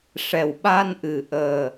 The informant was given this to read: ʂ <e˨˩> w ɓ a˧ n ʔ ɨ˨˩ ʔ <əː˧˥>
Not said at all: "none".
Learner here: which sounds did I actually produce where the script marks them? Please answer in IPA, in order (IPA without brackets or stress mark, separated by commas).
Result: ɛ˨˩, əː˨˩